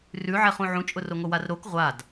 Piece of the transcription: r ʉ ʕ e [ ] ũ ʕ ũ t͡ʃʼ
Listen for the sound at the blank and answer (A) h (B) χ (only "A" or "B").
B